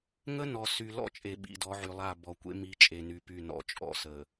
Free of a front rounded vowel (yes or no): no